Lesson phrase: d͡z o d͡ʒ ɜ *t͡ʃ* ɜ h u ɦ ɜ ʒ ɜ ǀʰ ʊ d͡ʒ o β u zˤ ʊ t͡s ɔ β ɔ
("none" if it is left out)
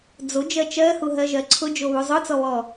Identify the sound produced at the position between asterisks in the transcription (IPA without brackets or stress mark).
t͡ʃ